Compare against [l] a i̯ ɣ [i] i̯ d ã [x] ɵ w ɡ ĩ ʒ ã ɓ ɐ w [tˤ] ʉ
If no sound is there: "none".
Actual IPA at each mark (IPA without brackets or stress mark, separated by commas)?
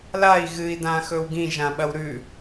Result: l, ɨ, x, ɾ